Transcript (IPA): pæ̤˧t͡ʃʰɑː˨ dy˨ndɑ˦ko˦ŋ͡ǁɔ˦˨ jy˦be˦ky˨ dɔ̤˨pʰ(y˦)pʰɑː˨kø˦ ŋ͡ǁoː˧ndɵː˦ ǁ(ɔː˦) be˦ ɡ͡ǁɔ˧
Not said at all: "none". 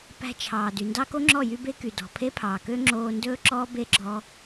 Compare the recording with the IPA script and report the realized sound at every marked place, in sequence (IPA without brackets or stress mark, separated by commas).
e˦, ɔː˦